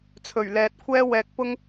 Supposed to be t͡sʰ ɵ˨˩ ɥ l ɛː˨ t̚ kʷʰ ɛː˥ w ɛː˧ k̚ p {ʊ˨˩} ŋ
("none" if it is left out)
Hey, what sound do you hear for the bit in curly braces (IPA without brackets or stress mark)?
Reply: ʊ˥